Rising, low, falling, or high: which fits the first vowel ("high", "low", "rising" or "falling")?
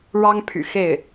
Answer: high